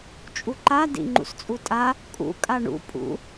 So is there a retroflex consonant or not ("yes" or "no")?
yes